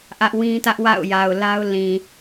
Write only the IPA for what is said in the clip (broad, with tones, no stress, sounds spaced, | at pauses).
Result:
ʔ ä˦ ʔ w ĩ˦ t ä˦ ʔ w a̰˦˨ ʊ̯ j a˨ ʊ̯ l a˦ ʊ̯ l ĩ˨